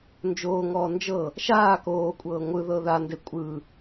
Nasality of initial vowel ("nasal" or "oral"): oral